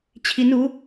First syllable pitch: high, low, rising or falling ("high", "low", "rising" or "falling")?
rising